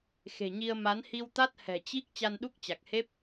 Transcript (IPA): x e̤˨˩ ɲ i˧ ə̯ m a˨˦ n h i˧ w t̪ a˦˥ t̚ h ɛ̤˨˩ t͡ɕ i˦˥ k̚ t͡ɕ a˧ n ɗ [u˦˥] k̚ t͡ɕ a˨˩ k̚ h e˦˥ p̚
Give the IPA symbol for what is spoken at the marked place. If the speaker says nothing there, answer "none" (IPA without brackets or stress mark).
u˦˥